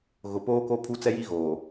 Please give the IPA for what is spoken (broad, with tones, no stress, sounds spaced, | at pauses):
ɣ ʊ˨ p oː˦ k o˦ pʰ u˦ t͡s ɛ˦ j i˦ ɣ oː˨